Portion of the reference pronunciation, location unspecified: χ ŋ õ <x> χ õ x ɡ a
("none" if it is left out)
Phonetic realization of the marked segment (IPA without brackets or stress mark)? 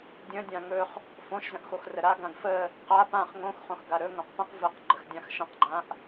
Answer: x